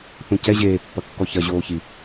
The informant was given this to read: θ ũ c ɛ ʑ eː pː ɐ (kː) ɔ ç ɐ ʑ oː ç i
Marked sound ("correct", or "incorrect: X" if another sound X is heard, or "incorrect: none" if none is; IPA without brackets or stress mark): correct